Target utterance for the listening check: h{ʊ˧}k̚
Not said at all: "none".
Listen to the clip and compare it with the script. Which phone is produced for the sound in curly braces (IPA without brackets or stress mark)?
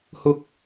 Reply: ʊ˧